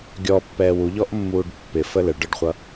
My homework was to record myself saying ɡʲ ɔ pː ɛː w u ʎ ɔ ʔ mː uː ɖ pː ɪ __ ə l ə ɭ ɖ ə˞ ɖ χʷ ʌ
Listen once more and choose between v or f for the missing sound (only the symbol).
f